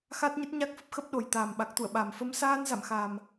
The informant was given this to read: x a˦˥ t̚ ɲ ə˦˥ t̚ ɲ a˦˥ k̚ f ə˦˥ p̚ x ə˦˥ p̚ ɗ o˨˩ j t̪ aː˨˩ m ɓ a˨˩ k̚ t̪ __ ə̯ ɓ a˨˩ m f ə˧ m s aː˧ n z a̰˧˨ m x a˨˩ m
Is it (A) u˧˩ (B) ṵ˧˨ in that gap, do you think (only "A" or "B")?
B